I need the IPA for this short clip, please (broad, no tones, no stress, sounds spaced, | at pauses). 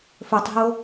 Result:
f ɵ tˤ ɦ o